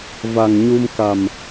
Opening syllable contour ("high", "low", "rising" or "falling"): low